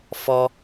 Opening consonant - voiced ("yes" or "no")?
no